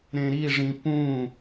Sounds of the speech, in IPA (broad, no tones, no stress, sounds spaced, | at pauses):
ɾ ẽ ɾ i ʐ ĩ p ũ